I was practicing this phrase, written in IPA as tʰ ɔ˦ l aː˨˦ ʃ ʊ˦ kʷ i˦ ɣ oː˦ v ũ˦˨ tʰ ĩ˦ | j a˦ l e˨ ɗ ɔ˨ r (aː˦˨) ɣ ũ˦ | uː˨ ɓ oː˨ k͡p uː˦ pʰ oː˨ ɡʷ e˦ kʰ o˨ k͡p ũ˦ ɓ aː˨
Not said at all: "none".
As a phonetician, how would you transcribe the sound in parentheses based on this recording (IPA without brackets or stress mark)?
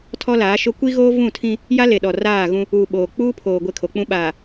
aː˦˨